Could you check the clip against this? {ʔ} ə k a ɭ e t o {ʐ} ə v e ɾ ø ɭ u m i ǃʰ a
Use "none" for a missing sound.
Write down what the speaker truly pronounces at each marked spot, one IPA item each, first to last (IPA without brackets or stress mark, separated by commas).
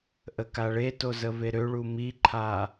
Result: ʔ, z